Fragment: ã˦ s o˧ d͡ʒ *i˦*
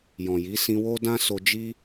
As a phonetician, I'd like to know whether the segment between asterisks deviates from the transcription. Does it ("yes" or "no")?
no